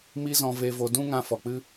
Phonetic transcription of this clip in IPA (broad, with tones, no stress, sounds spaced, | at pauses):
m i˦ z ɔ̃˧ v e˧ v o˧ d ũ˦ ŋ ã˧ f ɔ˨ k͡p ɨ˦